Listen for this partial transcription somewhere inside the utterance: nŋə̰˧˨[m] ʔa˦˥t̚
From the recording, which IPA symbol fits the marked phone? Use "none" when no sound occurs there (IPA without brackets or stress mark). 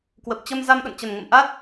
m